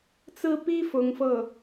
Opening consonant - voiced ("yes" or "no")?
no